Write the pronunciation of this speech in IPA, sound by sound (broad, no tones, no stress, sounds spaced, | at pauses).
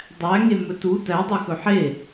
dˤ æ ŋ e m ɵ t u t æ dˤ ɵ x ɵ ħ e